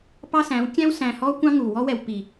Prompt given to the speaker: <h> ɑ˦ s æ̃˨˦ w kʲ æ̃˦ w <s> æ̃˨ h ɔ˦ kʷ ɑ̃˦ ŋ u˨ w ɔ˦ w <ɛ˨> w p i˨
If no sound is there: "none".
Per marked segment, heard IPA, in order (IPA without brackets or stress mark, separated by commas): p, s, ɛ˨